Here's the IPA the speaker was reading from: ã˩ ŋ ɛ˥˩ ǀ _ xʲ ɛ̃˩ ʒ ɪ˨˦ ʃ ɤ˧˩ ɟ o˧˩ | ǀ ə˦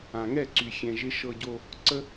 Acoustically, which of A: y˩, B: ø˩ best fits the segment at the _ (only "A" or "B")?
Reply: A